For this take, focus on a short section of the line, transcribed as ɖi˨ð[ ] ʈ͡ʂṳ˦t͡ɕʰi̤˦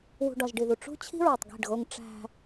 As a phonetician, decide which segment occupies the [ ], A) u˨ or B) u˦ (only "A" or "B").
A